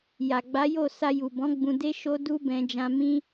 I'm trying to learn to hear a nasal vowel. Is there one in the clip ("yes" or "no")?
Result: yes